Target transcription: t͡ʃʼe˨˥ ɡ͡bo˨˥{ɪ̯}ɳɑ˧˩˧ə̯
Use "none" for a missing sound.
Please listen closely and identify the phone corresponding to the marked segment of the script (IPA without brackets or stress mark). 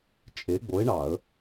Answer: ɪ̯